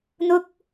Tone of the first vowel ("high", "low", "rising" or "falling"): high